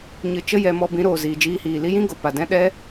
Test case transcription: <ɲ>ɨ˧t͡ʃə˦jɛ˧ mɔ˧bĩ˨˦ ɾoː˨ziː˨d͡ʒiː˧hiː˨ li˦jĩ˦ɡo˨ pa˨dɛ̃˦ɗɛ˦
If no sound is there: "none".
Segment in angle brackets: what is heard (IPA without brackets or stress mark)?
ɲ